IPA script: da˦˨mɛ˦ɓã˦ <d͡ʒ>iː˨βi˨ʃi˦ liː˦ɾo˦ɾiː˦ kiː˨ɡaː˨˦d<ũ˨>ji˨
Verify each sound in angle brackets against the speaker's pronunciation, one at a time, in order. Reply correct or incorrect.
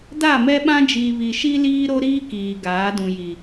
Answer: correct, correct

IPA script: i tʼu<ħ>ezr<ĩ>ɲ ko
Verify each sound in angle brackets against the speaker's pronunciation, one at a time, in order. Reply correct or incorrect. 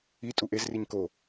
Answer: incorrect: ʔ, incorrect: i

